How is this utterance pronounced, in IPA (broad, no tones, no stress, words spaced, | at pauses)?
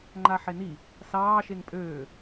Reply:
ŋ͡ǃaħeni | sɑː ʃeŋpʼøː